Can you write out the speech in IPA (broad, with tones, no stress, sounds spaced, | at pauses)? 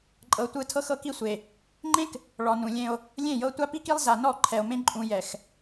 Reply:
ǃʼ ɤ˨ tʷ ɯ˨ tʰ ɤ˦ x ɤ˦ k i˦ sʷ e˨ | ŋ͡ǃ ẽ˦ k | ɭ ɔ˨ n ũ˨ lʲ ẽ˦ o̯ | lʲ ẽ˦˨ j ɤ˦ tʷ a˦ p i˦ k i˦ lˠ z a˨ n ɔ˦˨ ǃʰ ɛ˨ o̯ m ẽ˦ ǃʼ ũ˨ j ɛ˨ x